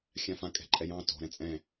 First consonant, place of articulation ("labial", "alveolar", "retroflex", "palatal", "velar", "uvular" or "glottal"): velar